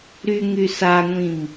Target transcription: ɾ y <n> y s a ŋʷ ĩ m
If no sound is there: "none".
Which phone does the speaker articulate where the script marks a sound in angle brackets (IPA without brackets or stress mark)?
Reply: ŋ